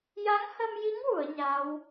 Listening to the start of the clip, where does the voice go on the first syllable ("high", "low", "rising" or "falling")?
rising